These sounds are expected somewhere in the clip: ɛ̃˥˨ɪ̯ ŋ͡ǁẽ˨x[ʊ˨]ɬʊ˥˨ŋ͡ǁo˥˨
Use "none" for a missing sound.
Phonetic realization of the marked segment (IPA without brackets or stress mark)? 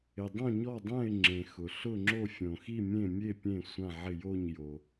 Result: ʊ˨